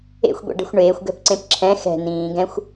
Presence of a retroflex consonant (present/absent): present